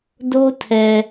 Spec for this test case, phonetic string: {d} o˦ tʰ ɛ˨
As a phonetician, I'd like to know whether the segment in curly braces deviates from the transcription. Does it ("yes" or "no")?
no